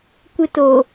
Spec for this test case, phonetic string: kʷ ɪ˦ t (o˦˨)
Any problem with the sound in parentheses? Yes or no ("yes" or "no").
yes